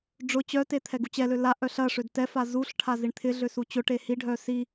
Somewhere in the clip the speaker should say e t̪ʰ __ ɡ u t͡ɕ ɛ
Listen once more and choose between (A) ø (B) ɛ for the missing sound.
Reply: B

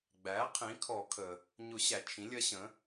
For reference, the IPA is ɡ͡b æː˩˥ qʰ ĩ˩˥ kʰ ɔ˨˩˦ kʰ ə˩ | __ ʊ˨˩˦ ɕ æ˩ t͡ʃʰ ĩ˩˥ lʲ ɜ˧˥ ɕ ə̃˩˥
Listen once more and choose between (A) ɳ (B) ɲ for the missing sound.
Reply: B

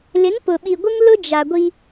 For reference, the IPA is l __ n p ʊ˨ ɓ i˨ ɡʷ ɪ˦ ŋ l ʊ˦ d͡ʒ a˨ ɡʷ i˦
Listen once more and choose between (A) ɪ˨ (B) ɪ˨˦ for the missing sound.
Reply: B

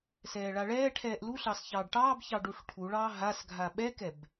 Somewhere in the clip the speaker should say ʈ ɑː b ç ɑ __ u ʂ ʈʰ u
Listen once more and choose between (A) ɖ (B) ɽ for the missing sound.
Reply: A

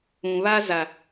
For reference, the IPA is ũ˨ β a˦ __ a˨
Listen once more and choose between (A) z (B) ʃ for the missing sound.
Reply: A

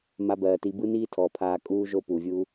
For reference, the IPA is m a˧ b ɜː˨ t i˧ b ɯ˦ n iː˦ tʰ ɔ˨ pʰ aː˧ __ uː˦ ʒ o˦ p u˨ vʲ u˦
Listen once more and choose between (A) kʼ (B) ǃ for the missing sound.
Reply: A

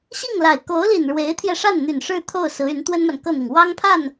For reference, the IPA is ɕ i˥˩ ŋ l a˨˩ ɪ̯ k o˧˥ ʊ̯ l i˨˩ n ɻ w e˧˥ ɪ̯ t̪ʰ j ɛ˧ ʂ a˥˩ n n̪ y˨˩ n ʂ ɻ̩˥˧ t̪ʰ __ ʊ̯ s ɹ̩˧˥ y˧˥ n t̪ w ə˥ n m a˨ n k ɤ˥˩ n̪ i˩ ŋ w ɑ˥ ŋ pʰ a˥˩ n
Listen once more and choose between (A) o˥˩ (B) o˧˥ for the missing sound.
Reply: A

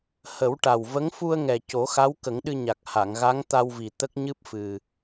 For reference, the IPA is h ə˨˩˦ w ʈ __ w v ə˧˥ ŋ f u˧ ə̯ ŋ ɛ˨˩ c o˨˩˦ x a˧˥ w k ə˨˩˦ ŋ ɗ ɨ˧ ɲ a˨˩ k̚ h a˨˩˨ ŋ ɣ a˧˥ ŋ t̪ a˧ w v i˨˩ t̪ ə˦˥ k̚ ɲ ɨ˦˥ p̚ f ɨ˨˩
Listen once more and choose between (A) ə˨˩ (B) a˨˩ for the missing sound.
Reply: B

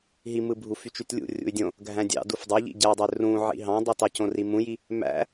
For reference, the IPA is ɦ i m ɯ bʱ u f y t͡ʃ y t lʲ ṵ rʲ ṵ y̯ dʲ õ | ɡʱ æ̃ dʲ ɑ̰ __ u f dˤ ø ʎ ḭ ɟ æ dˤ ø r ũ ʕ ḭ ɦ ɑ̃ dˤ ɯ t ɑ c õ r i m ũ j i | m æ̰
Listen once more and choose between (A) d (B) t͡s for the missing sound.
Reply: A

